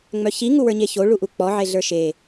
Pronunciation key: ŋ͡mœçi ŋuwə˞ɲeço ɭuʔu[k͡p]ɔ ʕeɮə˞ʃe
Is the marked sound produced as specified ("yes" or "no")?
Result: yes